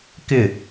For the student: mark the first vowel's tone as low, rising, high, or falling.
falling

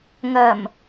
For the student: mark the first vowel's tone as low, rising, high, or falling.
low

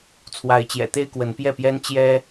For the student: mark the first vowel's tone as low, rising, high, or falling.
rising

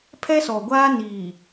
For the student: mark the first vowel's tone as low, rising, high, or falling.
high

